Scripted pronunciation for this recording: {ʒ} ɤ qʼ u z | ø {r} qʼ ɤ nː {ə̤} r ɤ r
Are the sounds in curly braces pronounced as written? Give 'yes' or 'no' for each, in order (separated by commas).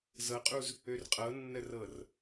no, yes, no